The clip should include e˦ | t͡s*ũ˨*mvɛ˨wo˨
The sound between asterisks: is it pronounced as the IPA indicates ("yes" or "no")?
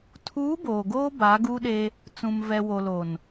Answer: yes